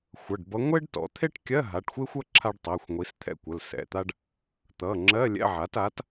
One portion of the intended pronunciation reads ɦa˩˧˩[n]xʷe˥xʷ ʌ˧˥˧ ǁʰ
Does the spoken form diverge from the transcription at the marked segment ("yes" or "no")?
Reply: yes